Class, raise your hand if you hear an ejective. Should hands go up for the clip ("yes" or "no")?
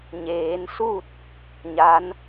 no